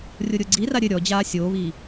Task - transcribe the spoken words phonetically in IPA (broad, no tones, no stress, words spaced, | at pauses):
rʲoɾʲoɡ͡ǀira ɾʲɘ ɾʲɔd͡ʑaː sʲoːβiː